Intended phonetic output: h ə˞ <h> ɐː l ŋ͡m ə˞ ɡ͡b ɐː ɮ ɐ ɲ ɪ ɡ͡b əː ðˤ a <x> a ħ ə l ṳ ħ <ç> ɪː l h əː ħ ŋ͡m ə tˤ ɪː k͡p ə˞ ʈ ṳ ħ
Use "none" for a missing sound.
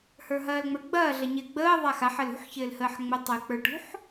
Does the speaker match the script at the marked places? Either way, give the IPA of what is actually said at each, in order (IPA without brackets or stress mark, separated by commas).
ɦ, x, ç